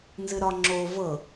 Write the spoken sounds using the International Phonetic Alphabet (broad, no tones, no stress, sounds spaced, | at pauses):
n z ɨ ɾ ɒ ŋ͡ǁ o v ɤ